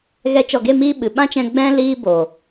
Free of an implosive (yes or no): no